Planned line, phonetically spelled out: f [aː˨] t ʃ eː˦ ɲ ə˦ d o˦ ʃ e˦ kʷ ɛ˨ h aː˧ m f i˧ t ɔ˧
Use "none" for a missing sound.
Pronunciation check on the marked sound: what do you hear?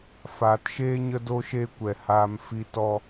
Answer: aː˨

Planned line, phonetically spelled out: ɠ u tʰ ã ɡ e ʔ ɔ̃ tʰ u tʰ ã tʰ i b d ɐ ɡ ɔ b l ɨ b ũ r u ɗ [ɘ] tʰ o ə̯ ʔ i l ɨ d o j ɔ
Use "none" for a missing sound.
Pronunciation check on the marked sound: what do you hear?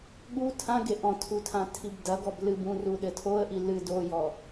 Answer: ɘ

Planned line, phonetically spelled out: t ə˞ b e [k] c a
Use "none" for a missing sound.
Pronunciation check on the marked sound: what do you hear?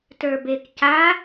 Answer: k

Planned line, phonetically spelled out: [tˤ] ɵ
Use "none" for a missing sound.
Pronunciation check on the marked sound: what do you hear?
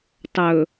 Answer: tˤ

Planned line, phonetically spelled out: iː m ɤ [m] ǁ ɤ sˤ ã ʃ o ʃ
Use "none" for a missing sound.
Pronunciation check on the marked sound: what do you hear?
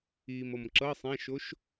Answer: m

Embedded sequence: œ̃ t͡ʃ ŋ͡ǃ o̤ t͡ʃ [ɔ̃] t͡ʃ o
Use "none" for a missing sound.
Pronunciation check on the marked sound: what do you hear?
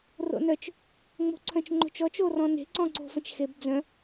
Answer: ɔ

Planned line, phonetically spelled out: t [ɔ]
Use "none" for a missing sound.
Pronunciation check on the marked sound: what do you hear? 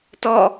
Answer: ɔ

